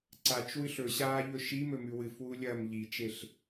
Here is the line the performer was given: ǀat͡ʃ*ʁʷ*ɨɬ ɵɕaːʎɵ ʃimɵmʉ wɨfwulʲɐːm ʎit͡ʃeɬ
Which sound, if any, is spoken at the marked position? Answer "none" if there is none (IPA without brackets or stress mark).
w